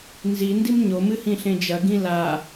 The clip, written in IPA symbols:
n z i n d i m ɲ o m ɨ h ĩ ɬ ẽ d͡ʒ ɐ ɡ ĩ l a

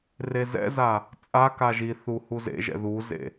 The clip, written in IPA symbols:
r e z ɛ̰ z a | t͡sʼ a k a ʒ i θ u h u z ḛ ʒ ɛ̰ ð u z ḛ

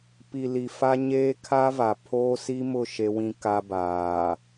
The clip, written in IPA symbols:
p i˨ l i˨ f a˦ ɲ eː˦ kʰ a˦ v a˨ pʰ oː˦ s i˦ m ʊ˦˨ ʃ e˦ w ĩ˦ k a˦ b aː˨

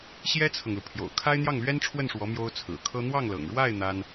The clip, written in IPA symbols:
ɕ j ɛ˥ t͡sʰ ɤ˨ ŋ l u˩ pʰ j o̰˨˩ ʊ̯ kʰ a˥ ɪ̯ n̪ j ɑ˥˩ ŋ l ɥ ɛ˥ n ʈ͡ʂʰ w ə˥˩ n ʂ w ɔ˧˥ m j o˥ ʊ̯ t͡sʰ ɹ̩˨˩ kʰ ɤ˥ n̪ w ɑ˥˩ ŋ l ɤ̰˨˩ ŋ ɻ w a˥˩ ɪ̯ n̪ a˥ n

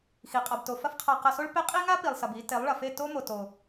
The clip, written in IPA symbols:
x i˨ qʼ a˨ b t o˨ f ɐ˦ f qʰ a˧ q ɐ˧ s o˦ ɭ p e˦ qʼ i˦ ŋ a˦ p i˨ lˠ s ɐ˨ b i˧ t e˨˦ lˠ ɭ ɐ˨ f e˦˨ t o˦ m o˨ t o˨

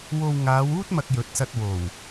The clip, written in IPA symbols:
w o˧ w ŋ aː˨˧ w uː˥ t̚ m ɐ˧ k̚ j ɵ˨˥ t̚ s ɐ˧ t̚ w o˨˩ w

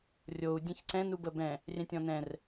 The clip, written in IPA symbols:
rʲ o u̯ dʲ ɛ̃ ç ǀ ɛ̃ n u b ə b ɛ̃ | rʲ ɛ̃ tʲ ɔ̃ n ɛ̃ r

